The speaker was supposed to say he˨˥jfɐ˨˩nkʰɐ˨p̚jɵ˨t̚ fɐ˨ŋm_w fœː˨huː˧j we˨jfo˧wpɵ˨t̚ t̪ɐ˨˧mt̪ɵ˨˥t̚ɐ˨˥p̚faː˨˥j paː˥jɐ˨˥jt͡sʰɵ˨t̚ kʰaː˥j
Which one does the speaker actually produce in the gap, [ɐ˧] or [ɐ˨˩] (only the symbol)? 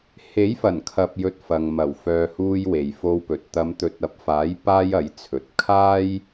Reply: ɐ˨˩